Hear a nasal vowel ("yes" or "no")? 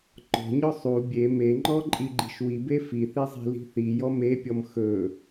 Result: no